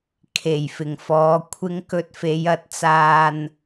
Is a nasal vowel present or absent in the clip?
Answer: absent